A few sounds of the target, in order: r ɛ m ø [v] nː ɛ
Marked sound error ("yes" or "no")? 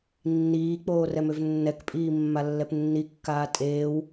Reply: no